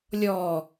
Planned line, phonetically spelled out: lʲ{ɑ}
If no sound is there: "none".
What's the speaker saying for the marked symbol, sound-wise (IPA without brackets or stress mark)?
ɔ